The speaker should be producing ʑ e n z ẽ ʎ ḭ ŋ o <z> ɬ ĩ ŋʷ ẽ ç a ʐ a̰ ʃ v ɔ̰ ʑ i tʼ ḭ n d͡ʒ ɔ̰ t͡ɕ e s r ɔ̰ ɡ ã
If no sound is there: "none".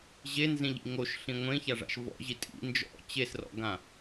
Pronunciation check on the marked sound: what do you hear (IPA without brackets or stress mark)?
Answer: ʃ